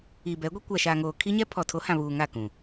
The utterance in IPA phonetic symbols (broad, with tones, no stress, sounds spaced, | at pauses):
i˨ b ɛ˨˦ ɡʷ i˦ kʷ a˨ ʃ a˨ ŋ oː˨ kʰ i˦ ɲ ɛ˦ pʰ ɔ˨ tʰ o˨˦ h ã˨ β uː˨ ŋ a˦˨ k ũ˨